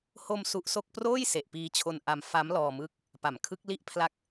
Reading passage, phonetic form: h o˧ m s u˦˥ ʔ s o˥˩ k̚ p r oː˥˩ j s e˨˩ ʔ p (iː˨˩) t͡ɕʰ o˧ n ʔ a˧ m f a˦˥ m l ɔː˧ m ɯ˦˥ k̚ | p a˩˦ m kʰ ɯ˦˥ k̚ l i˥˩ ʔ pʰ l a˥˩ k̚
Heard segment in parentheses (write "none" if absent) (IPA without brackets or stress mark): iː˧